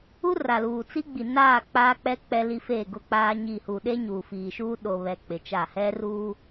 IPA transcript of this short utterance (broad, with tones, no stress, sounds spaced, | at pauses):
u˦ r a˨ l uː˨ t͡s i˦ ɡ͡b i˨ n aː˦˨ k͡p aː˦ k͡p ɛ˦ k͡p ɛ˦ l i˦ f eː˦˨ ɡ ʊ˦ k͡p aː˦ ɲ i˦˨ h u˨ ɗ e˦ ɲ uː˨ f iː˨ ʃ uː˦ ɗ o˨ β ɛ˨ k͡p ɪ˨ t͡ʃ a˦˨ h ɛ˦ r uː˦